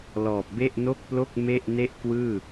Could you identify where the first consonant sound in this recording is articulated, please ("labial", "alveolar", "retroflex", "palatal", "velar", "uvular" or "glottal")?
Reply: alveolar